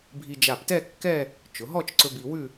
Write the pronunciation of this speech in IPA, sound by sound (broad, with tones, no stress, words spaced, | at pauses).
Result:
bʱi˧d͡ʒa˧˩ptɛ˥˧ kːɛ˥˧ | t͡ʃʊ˩˧ɦɔ˥˧t͡ʃ ǀɵ˧ bi˧wʉ˥˧